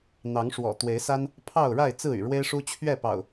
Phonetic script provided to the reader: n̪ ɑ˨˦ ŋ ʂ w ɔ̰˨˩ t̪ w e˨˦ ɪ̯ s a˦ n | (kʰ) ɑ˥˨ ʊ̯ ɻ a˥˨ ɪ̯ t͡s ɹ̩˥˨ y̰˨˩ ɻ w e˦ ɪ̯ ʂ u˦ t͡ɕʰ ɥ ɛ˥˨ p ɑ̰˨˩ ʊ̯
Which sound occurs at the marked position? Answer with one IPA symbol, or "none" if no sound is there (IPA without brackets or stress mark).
pʰ